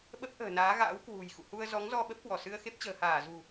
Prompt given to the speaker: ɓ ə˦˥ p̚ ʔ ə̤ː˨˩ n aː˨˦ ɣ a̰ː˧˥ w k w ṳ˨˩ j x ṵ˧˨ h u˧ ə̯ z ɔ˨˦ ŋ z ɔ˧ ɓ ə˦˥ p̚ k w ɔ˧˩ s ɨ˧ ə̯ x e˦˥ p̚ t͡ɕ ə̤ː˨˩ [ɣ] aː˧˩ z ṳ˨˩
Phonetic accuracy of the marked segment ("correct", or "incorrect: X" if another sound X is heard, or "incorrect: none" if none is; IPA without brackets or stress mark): incorrect: h